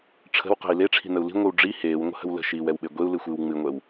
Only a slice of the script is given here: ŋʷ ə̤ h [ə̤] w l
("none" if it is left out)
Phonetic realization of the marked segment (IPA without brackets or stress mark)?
ə̤